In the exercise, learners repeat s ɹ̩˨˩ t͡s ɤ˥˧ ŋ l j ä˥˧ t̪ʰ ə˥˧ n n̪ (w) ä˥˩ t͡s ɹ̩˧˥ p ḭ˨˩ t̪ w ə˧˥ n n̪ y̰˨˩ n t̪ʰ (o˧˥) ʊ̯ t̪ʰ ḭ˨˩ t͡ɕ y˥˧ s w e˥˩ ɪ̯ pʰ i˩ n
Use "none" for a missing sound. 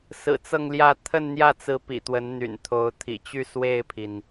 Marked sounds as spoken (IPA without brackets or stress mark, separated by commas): j, o˧˥